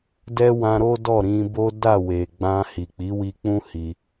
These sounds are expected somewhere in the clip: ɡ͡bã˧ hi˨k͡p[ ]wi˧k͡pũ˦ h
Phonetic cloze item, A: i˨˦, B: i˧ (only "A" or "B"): A